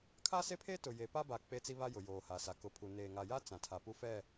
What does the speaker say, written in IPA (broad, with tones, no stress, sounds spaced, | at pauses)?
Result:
kʰ a˦ s e˦ pʰ e˦ t ʊ˨ j e˨ p a˦ b a˨ k͡p e˦ t͡s i˦ β a˦ j ʊ˨ j oː˨ h a˨ s a˨ k ʊ˨ pʰ u˨ n eː˨ ŋ a˨ j a˦ t͡s ã˨ tʰ a˨ p u˦ f ɛ˦˨